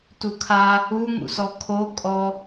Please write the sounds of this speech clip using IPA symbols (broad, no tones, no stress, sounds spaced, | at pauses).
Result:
t u kʰ a | u ŋ ṵ s ɔ kʰ o kʼ ɔ